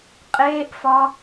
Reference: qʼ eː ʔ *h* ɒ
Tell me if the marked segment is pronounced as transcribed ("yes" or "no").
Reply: no